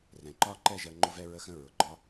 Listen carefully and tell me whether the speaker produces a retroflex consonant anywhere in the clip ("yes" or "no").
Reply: no